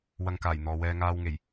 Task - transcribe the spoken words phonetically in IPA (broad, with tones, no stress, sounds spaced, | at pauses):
w ɐ˧ ŋ k aː˨˩ j n̪ ɔː˨ w ɛː˧ ŋ aː˧ w ŋ e˨˩ j